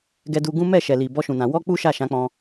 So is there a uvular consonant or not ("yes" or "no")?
no